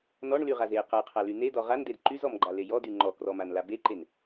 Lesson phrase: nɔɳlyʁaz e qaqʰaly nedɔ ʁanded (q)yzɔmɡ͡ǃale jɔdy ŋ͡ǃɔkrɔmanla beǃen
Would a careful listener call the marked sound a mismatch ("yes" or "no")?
yes